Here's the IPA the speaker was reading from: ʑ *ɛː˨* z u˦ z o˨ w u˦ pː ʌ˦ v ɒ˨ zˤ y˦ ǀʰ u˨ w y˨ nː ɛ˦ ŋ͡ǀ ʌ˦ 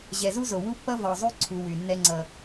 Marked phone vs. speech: incorrect: ɛ˨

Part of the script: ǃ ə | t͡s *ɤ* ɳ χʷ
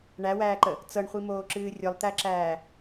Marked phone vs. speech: correct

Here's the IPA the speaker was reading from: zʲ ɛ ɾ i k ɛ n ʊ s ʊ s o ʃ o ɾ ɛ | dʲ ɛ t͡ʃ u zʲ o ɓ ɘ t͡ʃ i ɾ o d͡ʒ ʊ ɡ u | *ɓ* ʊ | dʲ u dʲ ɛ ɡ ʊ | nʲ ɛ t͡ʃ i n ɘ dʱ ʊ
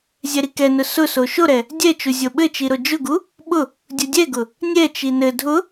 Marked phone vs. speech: correct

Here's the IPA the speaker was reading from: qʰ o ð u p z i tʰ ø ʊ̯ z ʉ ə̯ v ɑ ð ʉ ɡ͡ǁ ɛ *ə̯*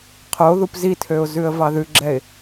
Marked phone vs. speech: incorrect: ɪ̯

